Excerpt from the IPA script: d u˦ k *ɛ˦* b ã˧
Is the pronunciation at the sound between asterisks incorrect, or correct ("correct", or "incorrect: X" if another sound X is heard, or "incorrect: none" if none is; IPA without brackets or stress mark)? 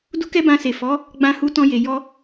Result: correct